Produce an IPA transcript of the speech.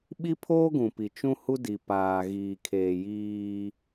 ɓ i˦ pʰ oː˦ ɡ ũ˨ p i˨ t͡ʃ ũ˦ h u˦ d i˨ p aː˨ ɣ iː˨ kʰ eː˨ j iː˦

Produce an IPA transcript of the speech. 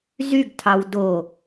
z y ɡ tʰ ɑ w d o

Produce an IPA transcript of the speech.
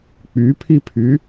k͡p y pʰ i pʰ y

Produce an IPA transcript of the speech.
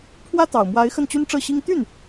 pʰ w ä˥ t̪ ɑ˨˩ ʊ̯ m w a˧˥ ɪ̯ x ə˥˩ n t͡ɕ y˥ n ʈ͡ʂ ɤ˥˩ ɕ i˥ ŋ t̪ y˥˩ n

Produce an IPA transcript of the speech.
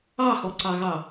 ɑ h ɔ ǀ ɑ ɣ ɑ

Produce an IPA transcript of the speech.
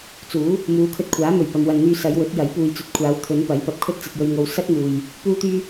t͡s uː˨˥ | m uː˨˧ kʰ ɵ˧ t̚ kʷʰ aː˨˥ m ɵ˨˩ ɥ p ɐ˨ m w ɐ˨ n n̪ yː˧ s ɐ˨˧ j w ɵ˨˥ t̚ j ɐ˨˥ j p uː˨ j t͡s ɵ˨˥ t̚ kʷʰ aː˨˧ w t̪ʰ ɵ˨˧ n p ɐ˨˥ j p ɐ˨ p̚ kʰ ɵ˥ t̚ t͡s ɐ˧ t̚ j ɵ˧ ɥ ŋ o˧ w s ɐ˥ t̚ m uː˨ j | p uː˥ t̪ yː˥

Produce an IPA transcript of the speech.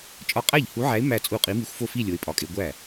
t͡ʃʼ ɒ˧˥ qʼ æ˥˩ ʎ h u˧˥ ʕ æ˧˥ ɪ̯ m æ˥˧ t͡sʼ u˥˩ qʼ i˧˥ m i˧˥ xʷ f o˥˧ f i˥˧ lʲ o˧˥ ɪ̯ pʼ ɒ˧˥ kʼ e˧˥ ɡʷ æ˥˩

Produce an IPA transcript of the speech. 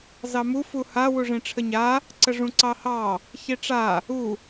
z ɑ m u f u h a w u ʐ ẽ ʈ͡ʂʰ ə ɲ a | ǀ ə ʐ ũ ǀ ɑ h ɑ | ç e ʈ͡ʂ a | u

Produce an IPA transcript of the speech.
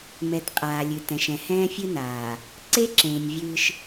m ɛ˨˦ t qʼ aː˨ lʲ ɨ˨ t ɛ̃˨ ʃ ɛ̃˨ h ɛ̃ː˦ fʲ ɨ˦ n aː˨ | ǀ e˦ ǁ ẽː˨ nʲ vʲ ɨː˦ ʃ

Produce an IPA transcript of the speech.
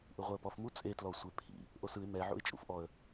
ʔ ɯ ʁʷ ɛ ə̯ p ɔ f m u t͡sʼ e t l ɔ sʷ e pʰ ḭ | ʔ o s ɯ ɪ̯ m ɛ ʕ ṵ ɪ̯ t͡ʃʼ ṵ f ʔ ɔ ə̯

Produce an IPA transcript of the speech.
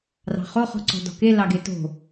r ɑ̤ χ o χ ɔ̤ ǀ ɔ̤ d ɔ̤ k e l ɑ ɡ e t o̤

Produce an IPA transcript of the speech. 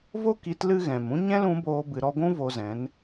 v o˦ k i˨˦ t l ɨ˦ ɣ ɛ̃˨ m ũ˦ ɲ ɛ̃˦ l ũ˨˦ b oː˧ b ɨ˧ ɾ ɔ˧ ɡʷ ũ˦ v o˧ z ɛ̃˨˦ n

